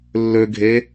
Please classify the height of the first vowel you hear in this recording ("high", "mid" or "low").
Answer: mid